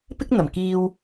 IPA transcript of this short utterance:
pɪ˥k̚n̪ɐ˨˩mkiː˧w

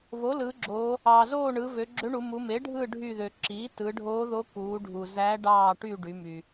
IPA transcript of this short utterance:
vo˩˥lɯ˩˧ɡ͡ǁoː˩˧ | ɑː˩zoː˦˨ɳɯ˩˧ vø˩˧ɡ͡ǁø˧˥ɳu˩˧mu˩˧ me˩˥ɖʱɯ˦˨ ɖʱy˦˨ðø˩ ǁiː˩˥tɯ˩˧ɖʱoː˧˥ðo˧˥ kuː˩˧ɖʱu˩ zæː˧˥ɖɑː˦˨ʈy˦˨ ɖy˩˧ my˩

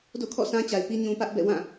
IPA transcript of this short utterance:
do̰˦˨kʰɔ̰˦˨ sã˦t͡ɕa˨ɪ̯pi˦ ɲũ˨ pä˦ʔbɛ̰˦˨ wã˦˨

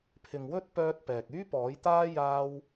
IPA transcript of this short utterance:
pʰɪ˨ŋwɵ˥t̚ pœː˥t̚pɛː˨k̚ yː˥pɔː˨˥jt̪aː˥ jaː˥w

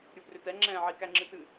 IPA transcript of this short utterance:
ɾʲuprʏtɛ ŋ͡ǁɛ̃ʕi kæŋ͡ǁɨtɨ

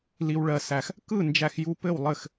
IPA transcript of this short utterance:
li˧wɭɜ˧sæ˧x | kɯ˥˨nd͡ʒæ˧xju˧ pɘ˥˨wlˠɘ˥˨x

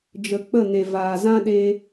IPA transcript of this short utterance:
d͡ʒə˨ k͡pə˦˨ne˨vaː˨ zã˦ɗe˧

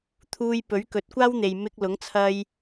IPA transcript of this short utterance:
t̪ʰuː˧j pɵ˨˥ɥkɵ˨˥t̚kʷaː˥wn̪e˨j mɪ˧k̚lʊ˨˥ŋ t͡sʰɐ˥j

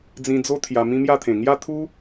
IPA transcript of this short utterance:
d͡zĩ˧d͡zo˦ t̪ʰja˧mĩ˦mja˥˧t̪ʰẽ˨˩ ŋja˥˧t̪ʰu˦

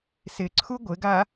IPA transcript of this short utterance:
sɪǀʰu ɡʷɪɡa

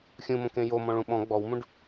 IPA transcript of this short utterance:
xʲũmõkẽ jomɔ̃ɭũ ɓɔ̃ ɡ͡bɔwmũɖ

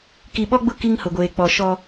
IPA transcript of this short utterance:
ki˨ɓɔ˦ɡ͡bʊ˦˨ ki˦ŋhʊ˨ɡʷeː˨ k͡pɔ˨ʃɔ˦

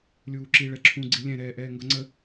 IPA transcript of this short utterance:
lʲuːǁi ɭɛǁʰũ ɡ͡ǀilʲɛ̃ɾɛːʔɛː ŋɡʌŋ͡ǀə

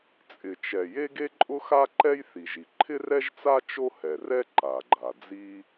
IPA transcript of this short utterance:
t͡sʼɪ˩t͡ʃɛ˩ je˥ɡe˥ǃʼʊ˥xa˥ ǃɛ˥jθi˩ʒi˩ ǃʰɪ˥rɛ˥ʒt͡sa˥ t͡ʃo˥hɛ˩rɛ˥ ǃa˩ɡ͡ǃa˩d͡zi˥

